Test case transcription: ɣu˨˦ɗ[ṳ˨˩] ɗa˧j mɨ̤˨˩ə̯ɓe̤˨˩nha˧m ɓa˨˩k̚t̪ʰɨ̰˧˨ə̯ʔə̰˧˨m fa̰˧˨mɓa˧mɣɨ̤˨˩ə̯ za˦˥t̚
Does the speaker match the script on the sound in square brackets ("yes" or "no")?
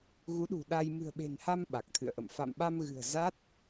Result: yes